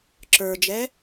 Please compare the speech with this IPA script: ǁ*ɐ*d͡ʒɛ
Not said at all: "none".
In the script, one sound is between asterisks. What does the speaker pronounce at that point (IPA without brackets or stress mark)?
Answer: ə˞